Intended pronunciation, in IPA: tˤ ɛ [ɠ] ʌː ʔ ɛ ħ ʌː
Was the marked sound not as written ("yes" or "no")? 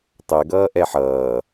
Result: yes